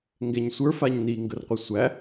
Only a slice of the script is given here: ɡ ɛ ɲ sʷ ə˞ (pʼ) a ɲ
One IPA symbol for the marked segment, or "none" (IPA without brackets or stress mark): f